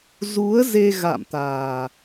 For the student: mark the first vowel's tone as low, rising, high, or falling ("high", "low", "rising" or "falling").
rising